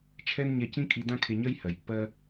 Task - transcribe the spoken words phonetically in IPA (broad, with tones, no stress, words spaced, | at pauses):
t͡ʃʰɛ˥nɲɛ˧ cĩ˥kʼi˧ dã˥kʰe˧ɲɜ˥j hɜ˩jpːɜ˧